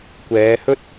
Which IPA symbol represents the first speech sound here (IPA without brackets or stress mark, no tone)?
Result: kʷ